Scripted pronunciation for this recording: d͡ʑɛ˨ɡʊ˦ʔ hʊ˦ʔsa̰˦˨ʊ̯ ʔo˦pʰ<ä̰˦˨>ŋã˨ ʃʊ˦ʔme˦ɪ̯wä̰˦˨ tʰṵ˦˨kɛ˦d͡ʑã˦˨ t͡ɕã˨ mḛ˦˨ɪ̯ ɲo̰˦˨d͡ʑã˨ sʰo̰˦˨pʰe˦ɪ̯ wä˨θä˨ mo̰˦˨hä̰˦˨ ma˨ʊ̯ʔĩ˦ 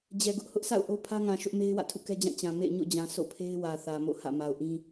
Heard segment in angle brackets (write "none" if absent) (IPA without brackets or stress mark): ä˦